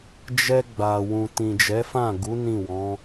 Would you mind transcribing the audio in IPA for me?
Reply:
d͡ʒ ɛ˧ ɡ͡b a˨ w ũ˨ t ĩ˨ d͡ʒ ɛ˨˦ f ã˦˨ ɡ u˨˦ n ĩ˦˨ w ɔ̃˨˦

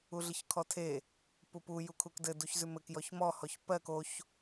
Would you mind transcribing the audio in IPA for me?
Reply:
u ɮ ɪ ç kʰ ɔ tʰ e | p u p u j u kʰ u k d ɘ d u ç z ʉ m ɘ k j ɔ ç m ɔ h ɔ ç p ɜ k o ç

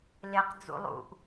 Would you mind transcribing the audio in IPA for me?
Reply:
l e q d͡z ṵ lˠ ṵ ʔ

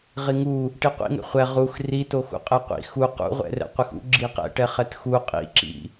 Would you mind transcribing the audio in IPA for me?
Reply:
ʁ i ŋ u | ʈ i qʷ ḭ ŋ ɛ̰ χʷ ɛ ʁ u x r i t o x ṵ qʼ ɛ qʷ ḭ x u q ṵ ʁʷ ɛ̰ r ɛ̰ qʷ ɯ x ṵ ɡ͡ǁ i q ɛ̰ ʈ ɛ χ ɛ t x u qʼ ḭ ǁ ḭ

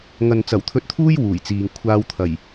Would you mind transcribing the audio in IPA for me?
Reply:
ŋ ɐ˨ n t͡s ɐ˨˩ w t̪ʰ ɵ˧ t̚ t̪ʰ uː˥ j w uː˨˩ j t͡s iː˨ ŋ kʷʰ aː˧ w t̪ʰ ɐ˨˩ j

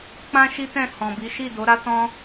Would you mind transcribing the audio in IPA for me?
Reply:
k͡p ã˦ ʃ i˦ t ɛ̃˦˨ h ɔ̃˨ b i˨˦ ʃ i˦˨ d o˨˦ ɾ a˦ t ɔ̃˦

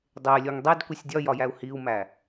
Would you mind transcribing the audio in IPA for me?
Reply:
dˤ e lʲ o ŋ dˤ e d kʷ i sʲ dʲ ɒ j ɒ j æ u̯ h i u̯ m æ

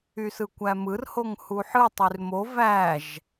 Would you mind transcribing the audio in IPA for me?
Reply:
y s ɯ kʷ æ m ɯ r h o ŋ h u ħ ɯ tˤ y r m o v æ ʒ

